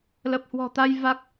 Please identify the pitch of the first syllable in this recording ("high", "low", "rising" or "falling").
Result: low